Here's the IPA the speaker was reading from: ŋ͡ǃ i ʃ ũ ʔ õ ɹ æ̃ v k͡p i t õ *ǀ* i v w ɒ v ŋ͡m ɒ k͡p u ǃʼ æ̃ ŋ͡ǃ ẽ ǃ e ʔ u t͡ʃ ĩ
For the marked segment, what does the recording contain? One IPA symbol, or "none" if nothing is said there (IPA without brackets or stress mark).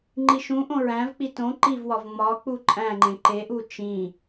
ǃ